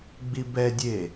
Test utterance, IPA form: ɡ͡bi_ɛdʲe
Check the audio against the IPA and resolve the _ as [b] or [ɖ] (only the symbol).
b